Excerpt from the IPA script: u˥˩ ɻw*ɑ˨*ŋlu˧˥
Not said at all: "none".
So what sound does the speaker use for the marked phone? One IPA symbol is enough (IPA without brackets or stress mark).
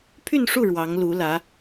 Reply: ɑ˧˥